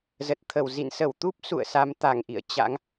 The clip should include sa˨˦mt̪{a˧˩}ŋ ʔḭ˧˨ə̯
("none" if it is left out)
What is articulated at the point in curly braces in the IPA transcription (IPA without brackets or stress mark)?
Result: a˧˩